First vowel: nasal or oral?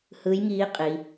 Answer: oral